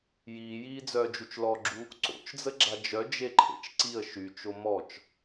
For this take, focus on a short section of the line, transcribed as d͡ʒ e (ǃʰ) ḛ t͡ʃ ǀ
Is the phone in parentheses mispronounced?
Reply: no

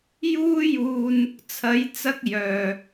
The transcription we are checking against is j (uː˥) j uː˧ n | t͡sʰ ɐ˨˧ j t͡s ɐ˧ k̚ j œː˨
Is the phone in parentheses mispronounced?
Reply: no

